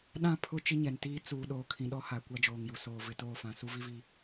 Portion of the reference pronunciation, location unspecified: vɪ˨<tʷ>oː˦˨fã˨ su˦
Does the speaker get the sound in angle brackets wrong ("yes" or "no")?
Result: yes